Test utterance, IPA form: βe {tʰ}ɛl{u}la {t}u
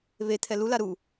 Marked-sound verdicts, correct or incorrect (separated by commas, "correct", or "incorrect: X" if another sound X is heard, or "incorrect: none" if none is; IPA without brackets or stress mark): correct, correct, incorrect: ɾ